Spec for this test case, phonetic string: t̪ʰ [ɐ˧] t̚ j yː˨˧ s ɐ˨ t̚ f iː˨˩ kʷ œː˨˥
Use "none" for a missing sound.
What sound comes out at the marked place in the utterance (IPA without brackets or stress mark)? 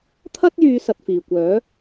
ɐ˥